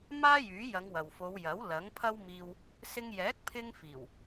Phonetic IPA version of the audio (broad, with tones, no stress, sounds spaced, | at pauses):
m aː˥ j yː˨˥ j ɐ˨˧ ŋ w ɐ˨ w f o˨˧ w j ɐ˨˥ w l ɐ˨˥ ŋ pʰ ɐ˥ w m iː˧ w | s ɪ˧ ŋ j ɛː˨˥ k̚ pʰ ɪ˥ ŋ f iː˨˩ w